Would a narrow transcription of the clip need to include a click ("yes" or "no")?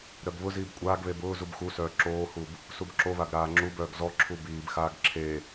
yes